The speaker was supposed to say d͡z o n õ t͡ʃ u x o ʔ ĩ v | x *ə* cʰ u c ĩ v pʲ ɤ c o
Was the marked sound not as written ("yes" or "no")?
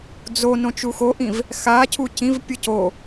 yes